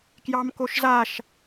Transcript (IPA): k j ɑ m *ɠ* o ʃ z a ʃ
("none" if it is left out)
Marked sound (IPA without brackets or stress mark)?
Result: k